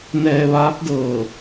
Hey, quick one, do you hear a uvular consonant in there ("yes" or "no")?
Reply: no